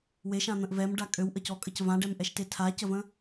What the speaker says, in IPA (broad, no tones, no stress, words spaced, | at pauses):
weʃãn̪ə̃ʔ vɛmɖa kʼøwʔəcɔkʼəc vãɖɛmʔɛʃte tʰacəvə̃